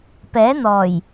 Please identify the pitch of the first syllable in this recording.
rising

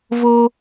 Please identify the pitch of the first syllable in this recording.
high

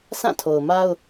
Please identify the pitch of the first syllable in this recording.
falling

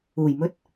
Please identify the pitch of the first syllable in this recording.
low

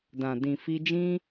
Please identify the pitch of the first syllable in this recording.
low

